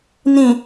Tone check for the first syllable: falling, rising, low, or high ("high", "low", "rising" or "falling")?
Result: low